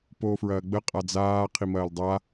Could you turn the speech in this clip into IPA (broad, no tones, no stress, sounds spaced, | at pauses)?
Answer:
p oː f ɹ ɐː ɡ͡b ə qʼ a d͡z aː qʰ i m ɐː l dˤ a